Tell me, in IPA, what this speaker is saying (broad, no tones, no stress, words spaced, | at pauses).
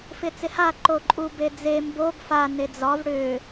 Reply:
fɪt͡sɪha ǃoǃʼubed͡ze mboɡ fa ned͡zɒv ɽʏ